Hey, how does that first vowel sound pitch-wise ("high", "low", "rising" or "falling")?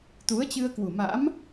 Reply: rising